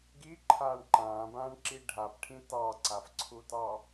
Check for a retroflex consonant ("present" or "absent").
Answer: present